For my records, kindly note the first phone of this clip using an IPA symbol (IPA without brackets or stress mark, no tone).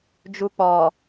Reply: d͡ʒ